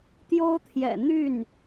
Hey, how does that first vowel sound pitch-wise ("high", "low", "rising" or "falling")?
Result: high